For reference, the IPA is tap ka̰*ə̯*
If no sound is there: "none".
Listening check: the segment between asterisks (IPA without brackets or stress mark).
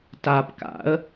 ə̯